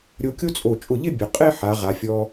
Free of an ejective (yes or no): no